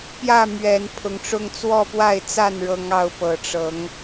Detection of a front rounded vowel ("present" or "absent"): absent